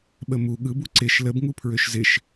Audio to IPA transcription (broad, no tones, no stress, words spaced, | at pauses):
ɓəmu ɠɯbu ǀɪʃ ləbŋu pʰɹøʃzɪʃ